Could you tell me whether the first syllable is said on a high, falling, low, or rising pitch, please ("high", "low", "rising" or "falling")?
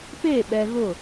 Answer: falling